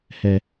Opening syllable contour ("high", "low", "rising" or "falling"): low